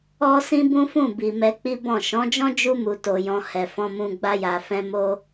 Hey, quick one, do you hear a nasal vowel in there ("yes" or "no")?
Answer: yes